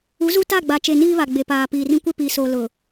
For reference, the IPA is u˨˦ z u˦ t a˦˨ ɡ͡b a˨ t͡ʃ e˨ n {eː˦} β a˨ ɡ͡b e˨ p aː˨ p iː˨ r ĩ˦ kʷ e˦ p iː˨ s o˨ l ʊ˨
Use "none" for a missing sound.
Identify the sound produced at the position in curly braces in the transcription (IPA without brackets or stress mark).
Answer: iː˦